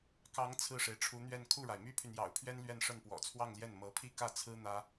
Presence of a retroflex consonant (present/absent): present